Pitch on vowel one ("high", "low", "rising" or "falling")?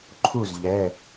falling